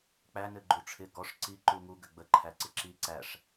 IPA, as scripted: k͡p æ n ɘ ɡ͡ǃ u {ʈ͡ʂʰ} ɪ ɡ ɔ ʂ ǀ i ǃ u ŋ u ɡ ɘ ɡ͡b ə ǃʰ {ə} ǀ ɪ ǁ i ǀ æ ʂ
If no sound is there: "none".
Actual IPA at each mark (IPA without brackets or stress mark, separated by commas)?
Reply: ʈ͡ʂʰ, æ